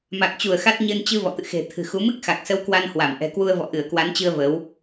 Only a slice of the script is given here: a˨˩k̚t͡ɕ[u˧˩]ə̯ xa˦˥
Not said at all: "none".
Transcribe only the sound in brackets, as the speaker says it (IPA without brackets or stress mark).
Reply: u˧˩